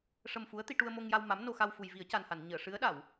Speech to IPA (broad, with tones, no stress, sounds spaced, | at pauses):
ʂ ə˧ m f u˧˥ ə̯ t̪ i˧ ʈ u˧ ə̯ m o˧ ŋ j a˧ w m a˧˥ m n o˧ x a˧ w f u˨˩ j v i˨˩˦ ə̯ c a˨˩ n h a˨˩˨ n ɲ əː˨˩˨ ʂ ɨ˧˥ ə̯ ɗ a˨˩˨ w